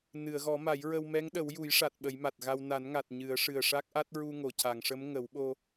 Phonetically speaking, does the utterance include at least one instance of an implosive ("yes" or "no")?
yes